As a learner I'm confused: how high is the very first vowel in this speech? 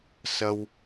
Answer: low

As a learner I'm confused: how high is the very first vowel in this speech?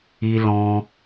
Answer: high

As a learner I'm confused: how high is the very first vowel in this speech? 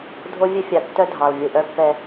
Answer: mid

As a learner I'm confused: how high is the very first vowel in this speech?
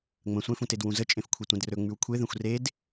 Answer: mid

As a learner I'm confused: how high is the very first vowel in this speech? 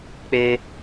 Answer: mid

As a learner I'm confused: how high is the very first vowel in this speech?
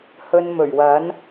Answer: mid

